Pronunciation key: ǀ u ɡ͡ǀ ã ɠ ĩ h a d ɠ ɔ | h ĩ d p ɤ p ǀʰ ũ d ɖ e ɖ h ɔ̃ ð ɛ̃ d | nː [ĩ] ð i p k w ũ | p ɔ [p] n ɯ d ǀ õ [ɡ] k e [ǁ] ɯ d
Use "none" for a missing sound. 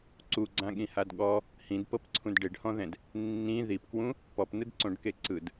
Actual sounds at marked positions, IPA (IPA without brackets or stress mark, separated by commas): ĩ, p, ɖ, ǀ